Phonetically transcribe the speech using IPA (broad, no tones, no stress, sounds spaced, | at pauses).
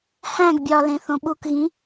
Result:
h æ̃ ɡ bʲ ɒ l ẽ θ õ ɓ u k ɣ ĩ